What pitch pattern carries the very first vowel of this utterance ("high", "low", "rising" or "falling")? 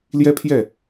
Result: high